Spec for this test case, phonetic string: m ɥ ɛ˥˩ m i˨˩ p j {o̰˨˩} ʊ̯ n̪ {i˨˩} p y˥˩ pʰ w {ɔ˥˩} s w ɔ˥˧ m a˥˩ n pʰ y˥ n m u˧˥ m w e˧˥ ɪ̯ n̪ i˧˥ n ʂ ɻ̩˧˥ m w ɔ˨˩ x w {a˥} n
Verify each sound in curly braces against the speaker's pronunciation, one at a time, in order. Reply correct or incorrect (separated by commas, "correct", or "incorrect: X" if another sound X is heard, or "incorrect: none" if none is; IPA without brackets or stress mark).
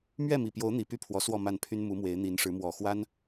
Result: incorrect: o˧˥, correct, incorrect: ɔ˧˥, correct